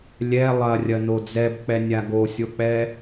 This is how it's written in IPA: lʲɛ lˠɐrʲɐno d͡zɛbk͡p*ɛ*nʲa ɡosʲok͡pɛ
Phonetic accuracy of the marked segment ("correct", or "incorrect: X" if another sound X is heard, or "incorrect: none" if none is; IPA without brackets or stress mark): correct